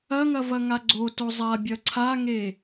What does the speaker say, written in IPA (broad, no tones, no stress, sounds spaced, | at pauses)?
ɐ ŋ ɐ v ɐ ŋ a ɡ͡ǀ o t o zˤ a bʲ ɐ ǀʰ a ŋ e